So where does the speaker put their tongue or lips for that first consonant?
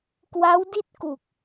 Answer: velum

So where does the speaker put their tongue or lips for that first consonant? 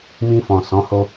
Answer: lips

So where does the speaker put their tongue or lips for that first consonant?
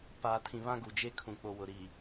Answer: lips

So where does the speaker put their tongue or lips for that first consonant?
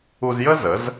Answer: tongue tip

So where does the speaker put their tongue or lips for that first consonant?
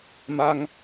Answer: lips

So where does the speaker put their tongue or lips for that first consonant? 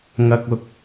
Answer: velum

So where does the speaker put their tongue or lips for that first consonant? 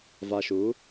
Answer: lips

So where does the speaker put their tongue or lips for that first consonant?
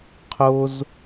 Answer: uvula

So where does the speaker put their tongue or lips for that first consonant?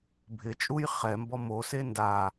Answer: lips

